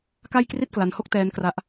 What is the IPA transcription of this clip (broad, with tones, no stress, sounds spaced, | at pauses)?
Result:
k a˥˩ j k r i˥˩ t̚ k l a˧ n h o˥˩ k̚ t ɛː˦˥ n k r a˦˥ ʔ